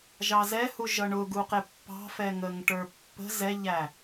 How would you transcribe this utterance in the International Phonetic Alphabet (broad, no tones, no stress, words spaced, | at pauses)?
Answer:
ʒɑzɛhuʒʌ ɳʊɡuqɪ pːɑ̤fɛŋəŋ ʈə˞pːə̤ zɛʎæ